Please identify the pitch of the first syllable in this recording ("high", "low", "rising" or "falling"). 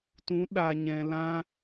rising